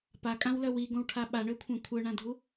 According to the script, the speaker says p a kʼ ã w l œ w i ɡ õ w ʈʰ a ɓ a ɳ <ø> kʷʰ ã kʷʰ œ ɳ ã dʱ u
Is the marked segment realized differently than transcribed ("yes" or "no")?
no